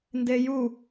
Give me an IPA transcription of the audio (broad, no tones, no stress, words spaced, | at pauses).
ndeju